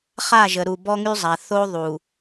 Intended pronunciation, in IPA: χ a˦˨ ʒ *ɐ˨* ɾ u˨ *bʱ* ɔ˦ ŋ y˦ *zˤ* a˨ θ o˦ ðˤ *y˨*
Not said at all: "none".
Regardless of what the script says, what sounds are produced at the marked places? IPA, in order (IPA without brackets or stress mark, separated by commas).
ə˨, b, zˤ, u˨